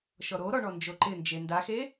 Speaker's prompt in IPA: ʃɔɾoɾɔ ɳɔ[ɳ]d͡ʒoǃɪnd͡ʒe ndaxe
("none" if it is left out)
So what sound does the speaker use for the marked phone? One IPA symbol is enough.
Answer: n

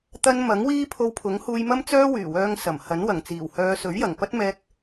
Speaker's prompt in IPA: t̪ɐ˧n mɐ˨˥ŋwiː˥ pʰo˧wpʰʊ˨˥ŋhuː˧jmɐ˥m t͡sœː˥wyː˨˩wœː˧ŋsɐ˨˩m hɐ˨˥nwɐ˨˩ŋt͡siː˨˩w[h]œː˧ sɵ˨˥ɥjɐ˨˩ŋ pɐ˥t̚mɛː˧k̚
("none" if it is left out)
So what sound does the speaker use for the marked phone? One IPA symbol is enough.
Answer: h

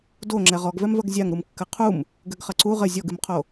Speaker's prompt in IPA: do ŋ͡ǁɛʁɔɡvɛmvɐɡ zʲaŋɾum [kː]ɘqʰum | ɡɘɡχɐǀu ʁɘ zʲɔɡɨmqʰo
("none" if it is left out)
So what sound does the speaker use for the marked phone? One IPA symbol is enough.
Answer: kː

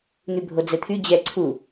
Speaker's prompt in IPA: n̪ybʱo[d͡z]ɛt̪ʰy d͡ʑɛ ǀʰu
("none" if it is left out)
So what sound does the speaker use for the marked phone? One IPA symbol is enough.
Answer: d͡z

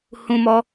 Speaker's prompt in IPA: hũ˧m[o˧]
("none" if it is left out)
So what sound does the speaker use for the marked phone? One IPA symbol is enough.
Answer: ɔ˧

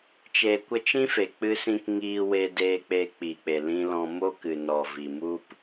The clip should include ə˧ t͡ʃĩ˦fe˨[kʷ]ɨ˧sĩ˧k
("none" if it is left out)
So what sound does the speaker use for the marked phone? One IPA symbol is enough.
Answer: k͡p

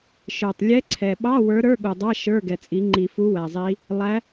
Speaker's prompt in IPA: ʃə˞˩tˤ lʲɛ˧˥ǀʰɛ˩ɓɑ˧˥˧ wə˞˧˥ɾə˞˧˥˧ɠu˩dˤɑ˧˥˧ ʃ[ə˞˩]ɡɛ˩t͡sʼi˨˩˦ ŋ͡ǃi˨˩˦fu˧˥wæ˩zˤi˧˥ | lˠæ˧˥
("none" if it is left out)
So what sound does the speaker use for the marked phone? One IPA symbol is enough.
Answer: ə˞˧˥˧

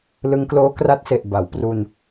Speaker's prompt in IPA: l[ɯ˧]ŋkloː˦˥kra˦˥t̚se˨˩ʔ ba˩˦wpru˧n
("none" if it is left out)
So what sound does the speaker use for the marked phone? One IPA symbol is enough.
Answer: ɯ˧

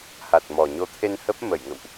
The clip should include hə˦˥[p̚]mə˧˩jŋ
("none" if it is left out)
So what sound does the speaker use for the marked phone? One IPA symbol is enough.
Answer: p̚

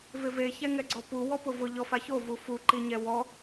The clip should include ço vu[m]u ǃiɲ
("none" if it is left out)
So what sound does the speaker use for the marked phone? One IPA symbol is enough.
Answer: f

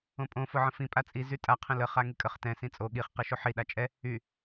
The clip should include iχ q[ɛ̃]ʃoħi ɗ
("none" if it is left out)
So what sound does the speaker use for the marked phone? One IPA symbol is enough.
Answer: ɛ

